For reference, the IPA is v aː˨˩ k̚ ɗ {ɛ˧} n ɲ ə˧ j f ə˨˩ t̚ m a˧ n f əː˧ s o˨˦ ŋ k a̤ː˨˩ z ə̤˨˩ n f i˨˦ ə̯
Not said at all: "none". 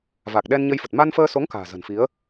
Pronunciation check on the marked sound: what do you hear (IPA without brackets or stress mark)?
ɛ˧